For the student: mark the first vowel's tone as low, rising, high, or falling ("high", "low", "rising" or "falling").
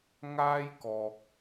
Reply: high